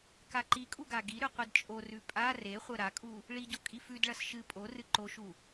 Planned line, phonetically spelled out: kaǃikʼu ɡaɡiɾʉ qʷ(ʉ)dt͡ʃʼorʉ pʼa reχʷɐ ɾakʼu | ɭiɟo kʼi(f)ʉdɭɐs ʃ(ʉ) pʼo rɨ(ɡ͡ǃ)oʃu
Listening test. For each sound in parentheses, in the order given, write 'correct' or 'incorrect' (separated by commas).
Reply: incorrect, correct, incorrect, incorrect